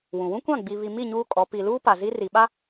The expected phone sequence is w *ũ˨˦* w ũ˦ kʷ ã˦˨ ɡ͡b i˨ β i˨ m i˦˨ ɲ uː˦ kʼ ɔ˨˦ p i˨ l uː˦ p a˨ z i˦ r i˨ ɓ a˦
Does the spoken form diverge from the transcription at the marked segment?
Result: yes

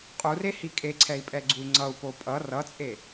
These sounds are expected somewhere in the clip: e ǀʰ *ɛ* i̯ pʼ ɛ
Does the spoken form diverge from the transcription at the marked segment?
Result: no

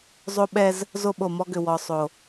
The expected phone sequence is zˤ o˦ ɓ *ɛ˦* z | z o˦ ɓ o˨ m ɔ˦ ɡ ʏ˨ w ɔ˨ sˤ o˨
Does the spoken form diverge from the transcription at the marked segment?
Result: no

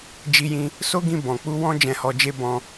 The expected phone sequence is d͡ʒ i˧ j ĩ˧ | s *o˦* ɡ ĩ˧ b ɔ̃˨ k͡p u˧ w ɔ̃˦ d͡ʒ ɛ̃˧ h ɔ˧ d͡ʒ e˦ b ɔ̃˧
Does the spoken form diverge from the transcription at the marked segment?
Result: no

